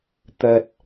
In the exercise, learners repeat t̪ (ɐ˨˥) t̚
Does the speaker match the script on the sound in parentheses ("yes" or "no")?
no